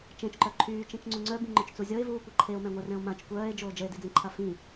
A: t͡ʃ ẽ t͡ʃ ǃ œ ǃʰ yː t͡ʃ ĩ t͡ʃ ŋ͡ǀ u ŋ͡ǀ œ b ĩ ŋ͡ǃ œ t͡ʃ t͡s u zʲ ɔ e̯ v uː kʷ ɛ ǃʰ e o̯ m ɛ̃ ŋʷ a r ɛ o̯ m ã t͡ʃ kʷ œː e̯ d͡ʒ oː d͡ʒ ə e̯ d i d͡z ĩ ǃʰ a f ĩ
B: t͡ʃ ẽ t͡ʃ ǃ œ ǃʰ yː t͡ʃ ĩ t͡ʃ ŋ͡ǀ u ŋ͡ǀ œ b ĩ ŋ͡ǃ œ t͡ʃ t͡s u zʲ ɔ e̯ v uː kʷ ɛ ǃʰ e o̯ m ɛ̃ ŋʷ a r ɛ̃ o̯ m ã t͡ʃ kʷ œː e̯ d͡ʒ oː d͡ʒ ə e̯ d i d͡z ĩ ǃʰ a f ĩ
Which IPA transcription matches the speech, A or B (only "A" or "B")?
B